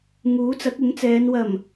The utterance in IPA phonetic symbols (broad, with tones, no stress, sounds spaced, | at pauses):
ŋ uː˨˥ t͡s ɐ˨˥ k̚ ɪ˨˥ ŋ t͡s ɛː˨˧ n w ɐ˨˩ m